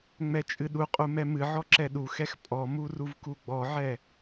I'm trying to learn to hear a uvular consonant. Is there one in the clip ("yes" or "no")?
yes